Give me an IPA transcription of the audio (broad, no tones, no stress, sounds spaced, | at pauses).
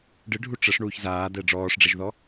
ɖ ɨ ɖʱ u ʈ͡ʂ ə ʂ ɳ uː ç z aː d̪ ɛ ɖ͡ʐ ɔː ʂ ɖ͡ʐ ɛ ʒ ð ɔ